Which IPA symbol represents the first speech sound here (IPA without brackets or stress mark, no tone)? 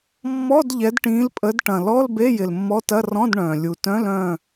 mː